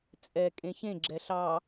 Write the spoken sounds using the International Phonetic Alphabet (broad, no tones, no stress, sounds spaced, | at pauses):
t͡sʼ ɛ kʼ ẽ ç ẽ ɡ͡ǁ ɛ ɬ ɑ